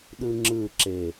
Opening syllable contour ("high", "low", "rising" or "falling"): high